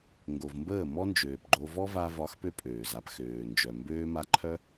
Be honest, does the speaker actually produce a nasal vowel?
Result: no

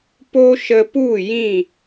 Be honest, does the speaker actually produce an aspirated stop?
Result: no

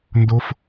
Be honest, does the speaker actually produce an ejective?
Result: no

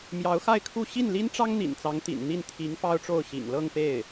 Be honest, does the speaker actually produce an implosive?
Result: no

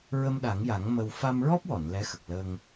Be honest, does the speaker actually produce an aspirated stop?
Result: no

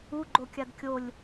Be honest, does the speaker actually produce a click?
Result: yes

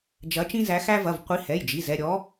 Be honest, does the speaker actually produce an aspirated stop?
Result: no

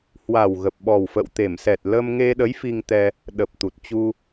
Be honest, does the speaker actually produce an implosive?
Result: yes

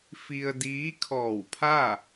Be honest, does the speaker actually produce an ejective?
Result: no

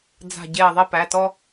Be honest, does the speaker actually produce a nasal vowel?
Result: no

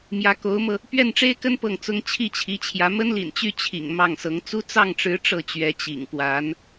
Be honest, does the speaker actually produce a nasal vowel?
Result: no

